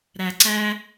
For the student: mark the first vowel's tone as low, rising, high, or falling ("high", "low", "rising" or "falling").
low